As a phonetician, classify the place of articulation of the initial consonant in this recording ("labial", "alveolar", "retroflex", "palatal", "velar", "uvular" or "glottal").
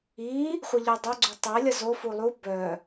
uvular